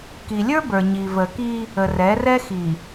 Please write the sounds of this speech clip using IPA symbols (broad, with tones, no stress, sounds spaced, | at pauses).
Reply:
k i˨ lʲ ə˞˦ b ə˞˨ ɲ i˨ v ə˨ k i˦ | ə˨ r ɛ˨˦ r ɛ˦ x i˨